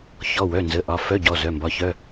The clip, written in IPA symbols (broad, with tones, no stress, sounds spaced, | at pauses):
ç ɔ˩˧˩ w œ˩˧˩ n z ə˩˧˩ ʔ ɒ˩˧˩ f œ˧˥˧ ɟ ɔ˩˧˩ z œ˩˧˩ m b ɒ˩˧˩ ç œ˧˥˧